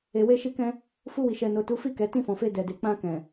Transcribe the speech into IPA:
e˨ w e˧ ʃ i˧ k ɛ̃˧ | f u˧ w i˨ ʃ ɛ˨ n o˨ t u˨˦ f i˦˨ k ɛ˨ t ĩ˧ f ɔ̃˨ f e˧ d ɛ˨ d e˨ k͡p ã˧ k ɛ̃˨

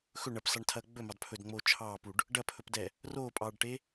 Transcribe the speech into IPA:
x ɵ ɳ ɐ p s ɑ ɳ tʰ ɐː ɡ͡b ɵ m ɑ d pʰ ɵ d ŋ͡m oː t͡ʃʰ ɑː p u ɖ | ɖ ɐ pʰ ɵ p d ɛ | r oː pʼ ɑː ɖ ʈ e

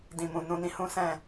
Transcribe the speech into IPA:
d ĩ˨ m ũ˨ n ũ˧ n ĩ˧ h ũ˦ s ɛ̃˦˨

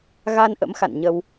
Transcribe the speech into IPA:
ɣ a˧ n ʔ ə̰˧˥ m x a̰˧˨ n ɲ ə˧ w

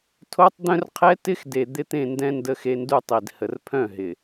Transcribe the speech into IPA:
tʰ o˦ tˤ d̪ œ̃˦ r qʰ ɛ˦ t ɪ˦ x d e˨ d̪ ɪ˦ t̪ ẽ˦˨ n d ɛ̃˦ n d ə˦ x e˦ n d u˦ tˤ i˨ d h ə˨ r pʰ œ̃˦˨ ɦ ɪ˨

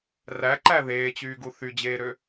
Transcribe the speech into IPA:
r æ ǃ æ ð eː t͡ɕ yː ɡ u θ y d͡ʑ eː ɾ ø

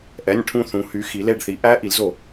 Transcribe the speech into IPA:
ʔ ɛ˩˧˩ nʲ ʈʰ ũ˧˩ θ ũ˩˧ h y˩˧ x i˩˧ l e˧˩ ɖ θ i˩˧ ʔ æ˧˥ ʔ i˩˧ l z o˧˩˧

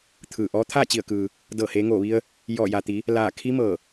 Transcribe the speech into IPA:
t̪ʰ ɯː˧˩ ʔ ɔː˧˥ t̪ʰ aː˥˨ t͡ɕ i˧˩ ə̯ k ɯː˩ | d ɤː˧˩ h eː˩˧ ŋ oː˧˩ ʋ i˧ ə̯ | j ɔː˧˩ j a˩ t̪ i˩˧ | l aː˧˩ kʰ i˧˥ m ɤː˧˩

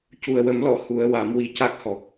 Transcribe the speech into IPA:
c u˨˩ ə̯ w ə˨˩˦ m l ɔ˨˩˨ h u˨˩˦ ə̯ w a˨˩˦ m w i˨˩ c a˦˥ k̚ h ɔ˨˩ k̚

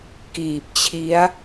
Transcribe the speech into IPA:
k iː˨˩ p̚ t͡ɕʰ i˦˥ a̯

